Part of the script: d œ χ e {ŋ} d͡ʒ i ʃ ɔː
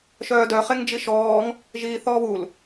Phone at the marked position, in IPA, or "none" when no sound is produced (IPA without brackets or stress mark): ŋ